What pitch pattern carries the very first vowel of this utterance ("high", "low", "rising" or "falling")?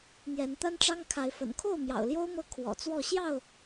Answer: rising